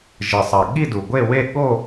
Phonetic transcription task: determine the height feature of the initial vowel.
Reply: high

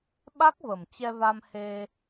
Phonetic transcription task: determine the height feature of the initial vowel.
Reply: low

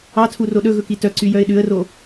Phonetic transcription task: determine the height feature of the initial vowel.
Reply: low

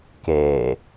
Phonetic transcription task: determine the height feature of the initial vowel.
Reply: mid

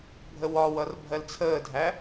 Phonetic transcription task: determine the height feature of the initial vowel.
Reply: mid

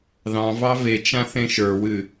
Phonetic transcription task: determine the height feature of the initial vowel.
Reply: low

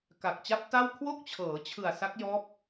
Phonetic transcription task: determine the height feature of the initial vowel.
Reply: low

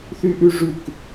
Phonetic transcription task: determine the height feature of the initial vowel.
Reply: high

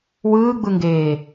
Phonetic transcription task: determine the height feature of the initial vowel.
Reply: high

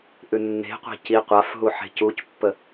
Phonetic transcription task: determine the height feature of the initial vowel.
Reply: high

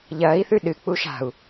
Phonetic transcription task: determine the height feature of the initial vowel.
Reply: low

